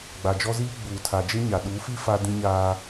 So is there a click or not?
no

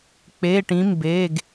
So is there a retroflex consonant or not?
yes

